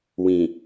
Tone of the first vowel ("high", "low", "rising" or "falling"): low